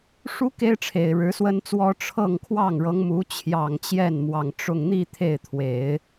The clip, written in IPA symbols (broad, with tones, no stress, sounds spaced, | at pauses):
ʂ u˥ k e˥ ɪ̯ ʈ͡ʂʰ e˨˩ ɪ̯ ɻ ɻ̩˧˥ s w ə˥ n t͡s w ɔ˥ ʈ͡ʂʰ ɤ˥˧ ŋ kʰ w ɑ˥˩ ŋ ɻ ɤ˧˥ ŋ m u˧˥ t͡ɕʰ j ɑ˨˩ ŋ t͡ɕ j ɛ˥˩ n m w ɑ˨˩ ŋ ʈ͡ʂ ʊ˥˧ ŋ n̪ i˥˧ t̪ʰ e˥˩ ɪ̯ t̪ʰ w e˨˩˦ ɪ̯